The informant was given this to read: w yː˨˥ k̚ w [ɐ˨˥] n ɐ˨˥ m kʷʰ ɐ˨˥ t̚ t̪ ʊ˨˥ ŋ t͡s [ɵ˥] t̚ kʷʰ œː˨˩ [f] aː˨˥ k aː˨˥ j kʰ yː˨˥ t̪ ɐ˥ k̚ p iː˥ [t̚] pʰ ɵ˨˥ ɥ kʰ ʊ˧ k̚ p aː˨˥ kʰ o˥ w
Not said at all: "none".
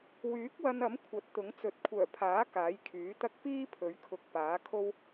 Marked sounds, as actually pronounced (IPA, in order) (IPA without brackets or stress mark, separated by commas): ɐ˧, ɵ˨˥, pʰ, none